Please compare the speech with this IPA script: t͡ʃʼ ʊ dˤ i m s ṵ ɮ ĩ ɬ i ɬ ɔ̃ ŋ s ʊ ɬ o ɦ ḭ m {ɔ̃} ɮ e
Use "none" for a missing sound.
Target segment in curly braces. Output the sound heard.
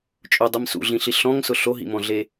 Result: ɔ̃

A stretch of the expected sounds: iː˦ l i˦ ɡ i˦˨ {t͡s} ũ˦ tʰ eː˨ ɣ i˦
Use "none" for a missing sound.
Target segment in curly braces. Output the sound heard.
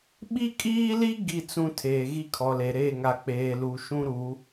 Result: t͡s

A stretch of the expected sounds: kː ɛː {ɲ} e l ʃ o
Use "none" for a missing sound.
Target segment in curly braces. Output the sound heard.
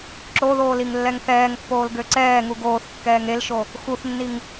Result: ŋ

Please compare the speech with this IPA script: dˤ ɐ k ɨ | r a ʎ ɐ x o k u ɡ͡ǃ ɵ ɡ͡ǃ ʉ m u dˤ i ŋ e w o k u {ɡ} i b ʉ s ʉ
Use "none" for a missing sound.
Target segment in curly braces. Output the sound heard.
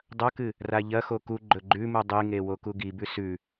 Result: ɡ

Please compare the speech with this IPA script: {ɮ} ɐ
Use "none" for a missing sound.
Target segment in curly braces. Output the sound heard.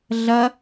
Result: ɮ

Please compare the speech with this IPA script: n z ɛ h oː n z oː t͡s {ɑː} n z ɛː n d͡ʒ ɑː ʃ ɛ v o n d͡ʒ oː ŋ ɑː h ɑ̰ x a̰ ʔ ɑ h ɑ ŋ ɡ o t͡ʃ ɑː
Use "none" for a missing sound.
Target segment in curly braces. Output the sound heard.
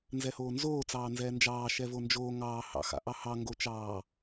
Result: ɑː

